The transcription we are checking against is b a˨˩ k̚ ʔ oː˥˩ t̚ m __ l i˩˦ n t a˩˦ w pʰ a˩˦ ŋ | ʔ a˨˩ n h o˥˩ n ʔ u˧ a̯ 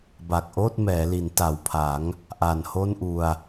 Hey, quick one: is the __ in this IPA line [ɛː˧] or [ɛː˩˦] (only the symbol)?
ɛː˩˦